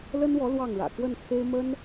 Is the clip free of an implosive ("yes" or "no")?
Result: yes